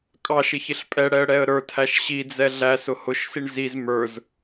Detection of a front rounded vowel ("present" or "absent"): absent